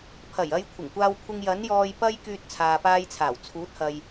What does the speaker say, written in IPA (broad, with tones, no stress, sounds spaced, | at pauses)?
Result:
pʰ ɐ˨˩ j ɐ˧ j kʷʰ ɪ˨˩ ŋ kʷ aː˧ w kʷʰ ɪ˧ ŋ j ɐ˨˥ n j ɔː˧ j p ɐ˥ j k yː˧ t̚ t͡sʰ aː˨ p aː˧ j t͡sʰ aː˨˩ w t͡sʰ uː˨˥ t̚ h ɐ˨ j